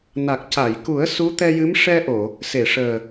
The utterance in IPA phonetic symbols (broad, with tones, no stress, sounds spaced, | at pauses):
n a˨˩ k̚ c a˨˩˨ j k u˨˩˦ ə̯ s u˧˥ t̪ ɛ˧ j ɨ˧˥ m ʂ ɛ˧ ʔ o˨˩˨ | s e˨˩˨ ʂ əː˨˩